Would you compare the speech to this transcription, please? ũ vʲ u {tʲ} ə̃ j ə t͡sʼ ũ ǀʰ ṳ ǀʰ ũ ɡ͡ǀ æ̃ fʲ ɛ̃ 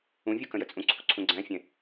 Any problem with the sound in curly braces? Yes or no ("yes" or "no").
yes